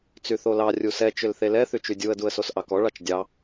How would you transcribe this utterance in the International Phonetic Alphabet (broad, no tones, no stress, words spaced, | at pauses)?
t͡syθolɑ rʲusɛ t͡ʃʏlθelɛ θyt͡ʃydʲuə̯ duə̯sosʔɑkɔ ɭɑt͡ʃdʲɑ